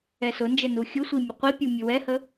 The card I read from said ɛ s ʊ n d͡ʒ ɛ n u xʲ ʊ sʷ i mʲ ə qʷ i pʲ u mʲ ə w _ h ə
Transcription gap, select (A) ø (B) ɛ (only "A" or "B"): B